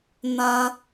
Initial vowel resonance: nasal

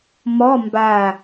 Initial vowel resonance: oral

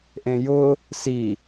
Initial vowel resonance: nasal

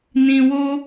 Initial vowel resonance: nasal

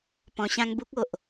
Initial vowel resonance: nasal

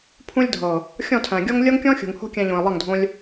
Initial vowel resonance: nasal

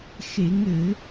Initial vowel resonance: oral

